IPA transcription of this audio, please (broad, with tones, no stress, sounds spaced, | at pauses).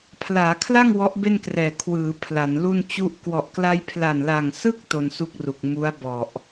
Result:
pʰ l aː˩˦ kʰ l a˥˩ ŋ w ɔ˦˥ ʔ b e˥˩ n k r ɛː˨˩ kʰ w ɯː˩˦ pʰ l a˩˦ n l u˥˩ n t͡ɕ u˥˩ ʔ k w ɔ˨˩ ʔ k l a˧ j pʰ l a˨˩ n l a˨˩ ŋ s ɯ˥˩ k̚ t o˧ n s u˥˩ k̚ r u˨˩ k̚ m u˦˥ a̯ b ɔ˨˩ ʔ